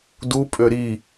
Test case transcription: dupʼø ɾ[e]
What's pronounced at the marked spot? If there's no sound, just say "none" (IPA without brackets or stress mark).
i